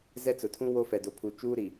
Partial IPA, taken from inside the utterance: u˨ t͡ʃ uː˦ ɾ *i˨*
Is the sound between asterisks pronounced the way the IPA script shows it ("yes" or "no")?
yes